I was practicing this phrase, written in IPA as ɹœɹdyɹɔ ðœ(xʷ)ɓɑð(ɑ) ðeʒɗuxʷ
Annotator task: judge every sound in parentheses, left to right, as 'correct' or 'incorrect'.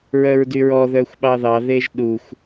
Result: correct, correct

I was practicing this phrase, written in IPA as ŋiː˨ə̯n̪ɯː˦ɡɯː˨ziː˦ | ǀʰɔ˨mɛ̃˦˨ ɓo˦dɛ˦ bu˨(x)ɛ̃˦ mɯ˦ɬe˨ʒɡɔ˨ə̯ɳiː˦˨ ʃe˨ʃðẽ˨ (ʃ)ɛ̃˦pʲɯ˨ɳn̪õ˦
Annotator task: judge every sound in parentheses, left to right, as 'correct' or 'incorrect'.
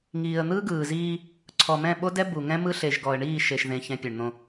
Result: incorrect: ŋ, incorrect: ç

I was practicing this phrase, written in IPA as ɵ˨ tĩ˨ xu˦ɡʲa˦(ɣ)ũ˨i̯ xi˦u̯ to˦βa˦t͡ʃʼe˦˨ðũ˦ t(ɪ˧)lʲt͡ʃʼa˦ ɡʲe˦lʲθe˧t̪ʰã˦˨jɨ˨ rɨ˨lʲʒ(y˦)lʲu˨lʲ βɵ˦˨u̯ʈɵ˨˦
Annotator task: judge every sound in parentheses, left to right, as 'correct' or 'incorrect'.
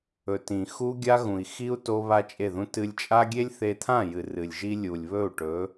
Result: correct, incorrect: ɨ˧, incorrect: i˦

